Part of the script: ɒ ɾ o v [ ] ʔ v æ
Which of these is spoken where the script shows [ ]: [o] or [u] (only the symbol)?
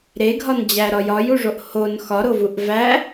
u